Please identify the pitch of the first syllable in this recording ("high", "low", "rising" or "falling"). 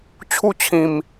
falling